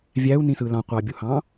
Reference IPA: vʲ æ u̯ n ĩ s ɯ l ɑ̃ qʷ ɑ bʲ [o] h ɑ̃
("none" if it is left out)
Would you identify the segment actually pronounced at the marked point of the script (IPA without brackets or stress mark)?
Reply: u